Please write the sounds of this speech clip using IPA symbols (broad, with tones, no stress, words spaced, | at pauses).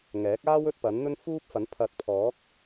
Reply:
ŋɛː˨˥k̚aː˥wɵ˥t̚ pɐ˨˥nn̪ɵ˥n fuː˥p̚fɐ˨˥n pʰɐ˨t̚pʰɔː˨˥k̚